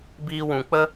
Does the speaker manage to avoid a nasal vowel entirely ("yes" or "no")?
no